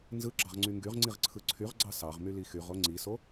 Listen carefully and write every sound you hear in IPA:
n z ɯ ɡ͡ǁ ɑ ʁ ŋ͡ǀ y ŋ ɡ y ʁ ŋ͡ǀ i ʁ ǀʰ ɯ ǀʰ y ʁ ɡ͡ǀ ɑ s ɑ ʁ m y l i x y ʁ o ŋ͡ǀ i s o

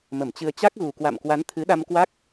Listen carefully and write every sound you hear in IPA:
m ə˧˩ m t͡ɕ ɨ˧ ə̯ t͡ɕ a˦˥ k̚ ɣ u˨˩ k w a̰˧˨ m k w a˨˦ n t̪ʰ ɨ˨˦ ɗ a˧ m k w a˦˥ k̚

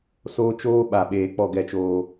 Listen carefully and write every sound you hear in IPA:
s oː˦ t͡ʃ oː˦ ɓ a˨ ɓ eː˨ k͡p ɔ˦˨ ɡ ɛ˦˨ t͡ʃ oː˦

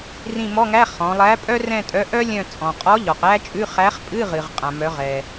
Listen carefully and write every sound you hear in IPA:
r ĩ˦˨ m ɔ˧˥˧ ŋ æ˧˥˧ χ ɔ̃˩˧ lˠ æ˨˥ pʼ œ˥ r ɛ̃˦˨ tʼ œ˨˥ ʔ œ˥ lʲ œ̃˦˨ t͡sʼ ɔ̃˩ qʼ ɔ˨˥ ʎ ɔ˩ q æ˥ t͡ʃʼ ʉ˧˥˧ χ æ˨˥ χ pʼ ɨ˧˥˧ ʁ ɨ˩ ʁ qʼ ã˩ m œ˩˧ ʁ ɛ˩

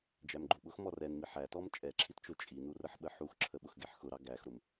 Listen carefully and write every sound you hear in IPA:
d͡ʒ æ m ɡ͡ǃ u ɓ ʊ x m ɔ r ɛ n m i ħ æ t ɔ m t͡ʃʼ ɛ ǁʰ i t t͡ʃ ʊ t͡ʃʼ i n u r ə ħ ɓ ə ħ u x ǁʰ ə ɓ ʊ x ɡ ɛ ħ x ʊ ɾ ɑ ɡ æ x ɾ ʊ m

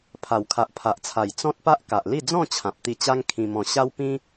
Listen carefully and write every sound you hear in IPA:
pʰ a˨˩ w kʰ a˨ ʔ pʰ a˨ ʔ t͡sʰ a˨˩ j t͡s ɔ̃˦ t̚ p a˦ ʔ k a˨ ʔ l i˥˧ d͡z ɔ̃˥˧ t͡ɕʰ ã˨ p̚ t̪ i˧ t͡ɕ a˦ ŋ kʰ ĩ˧ m ɔ̃˧ ɕ a˦ w p ĩ˦

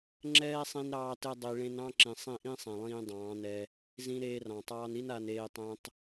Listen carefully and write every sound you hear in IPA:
ŋ͡ǁ ɛː˦ sˤ ĩ˧ n ɾ ɑː˧ t ɘ˧ dˤ i˨ ɭ ẽ˦ n ɑ̃˦ ǁ ĩ˨ sˤ ĩ˦˨ ʔ ĩ˦ sˤ ɛ̃˨ lˠ ĩː˧ dˤ ɑ̃ː˨˦ n ɛ˧ | z ĩ˧ ɾ eː˧ r ɑ̃˨ tˤ ɑː˧ n i˦ n a˧ n eː˧ tˤ ɛ̃˧ tˤ

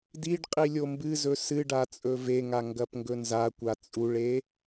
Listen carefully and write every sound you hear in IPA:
d i ɖ qʼ i lʲ o m b ɨ z ɵ s ɨ ɖ a t͡sʼ ɵ v e ŋ a ŋ ɡ ɐ p ŋ ɡ ɵ n z a kʷ a t͡sʼ u ɭ e

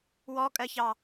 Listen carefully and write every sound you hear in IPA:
w ɔ kʼ ɜ ç ɑ

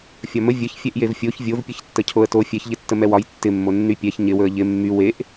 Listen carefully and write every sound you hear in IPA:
fʲ ɒ m ə vʲ ə ç fʲ ɛ ʔ j e v fʲ o ç vʲ o v pʲ ə ç tː ə cʰ o ə̯ t o fʲ ɛ ç ʎ ɪ tː ə m ɛ w ɒ j tː ɪ mː o nː y pʲ ɛ ç ɲ ɪ w ɵ ə̯ ʎ ɪ mː y w e ʔ

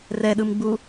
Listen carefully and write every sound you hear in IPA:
r ɛ ɗ ɯ m ɡ͡b u

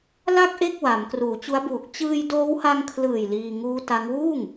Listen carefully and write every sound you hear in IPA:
l a˥˩ k̚ ʔ e˥˩ k̚ w a˩˦ m k r uː˩˦ t͡ɕ u˦˥ a̯ b uː˨˩ k̚ t͡ɕ ɯː˧ j d oː˦˥ w h a˧ ŋ kʰ l ɯː˨˩ j l iː˧ ŋ uː˦˥ t a˦˥ ŋ w uː˥˩ ŋ

